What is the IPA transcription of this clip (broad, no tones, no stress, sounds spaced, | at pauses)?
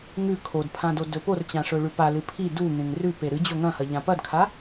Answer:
ŋ ʉ kʰ o d pʰ ã d o d ɵ p o r t͡ɕ ã ʂ ɵ ɭ ʉ p a l ɨ pʰ i d u ŋ ẽ ŋ r ʉ p e ɾ ɨ d͡ʑ o ŋ ɐ̃ h ɐ ʎ ã p ɐ d kʰ a